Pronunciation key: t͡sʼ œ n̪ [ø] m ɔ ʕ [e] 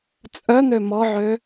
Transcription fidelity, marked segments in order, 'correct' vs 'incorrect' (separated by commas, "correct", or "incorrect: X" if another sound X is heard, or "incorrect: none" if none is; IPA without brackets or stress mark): correct, incorrect: ø